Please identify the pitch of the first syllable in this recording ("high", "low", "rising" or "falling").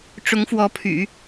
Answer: rising